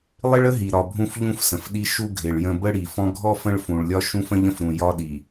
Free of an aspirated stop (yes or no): yes